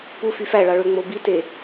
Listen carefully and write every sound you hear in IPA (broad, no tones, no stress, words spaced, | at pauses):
pu fyfæɭɑ ɭøŋ͡mobite